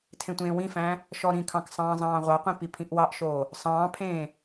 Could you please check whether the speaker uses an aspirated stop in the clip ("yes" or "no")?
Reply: yes